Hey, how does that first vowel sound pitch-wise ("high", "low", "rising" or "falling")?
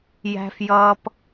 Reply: high